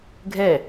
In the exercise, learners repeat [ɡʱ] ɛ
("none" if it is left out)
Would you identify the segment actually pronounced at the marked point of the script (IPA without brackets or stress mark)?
ɡʱ